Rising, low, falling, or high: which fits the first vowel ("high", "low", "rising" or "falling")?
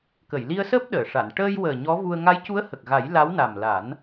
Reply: low